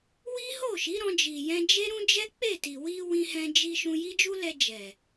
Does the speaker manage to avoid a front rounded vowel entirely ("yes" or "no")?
yes